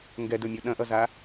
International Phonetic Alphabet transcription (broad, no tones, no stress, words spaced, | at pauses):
ŋɡɛdɵmʲo ɗɐ̃ʔʌza